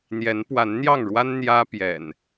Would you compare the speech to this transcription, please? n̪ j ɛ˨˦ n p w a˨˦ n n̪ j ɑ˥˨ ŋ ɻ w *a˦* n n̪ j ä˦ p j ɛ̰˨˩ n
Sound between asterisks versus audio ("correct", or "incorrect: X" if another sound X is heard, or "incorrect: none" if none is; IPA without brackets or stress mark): correct